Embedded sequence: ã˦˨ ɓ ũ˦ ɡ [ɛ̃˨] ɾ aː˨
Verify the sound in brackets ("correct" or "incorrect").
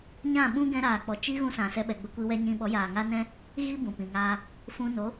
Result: incorrect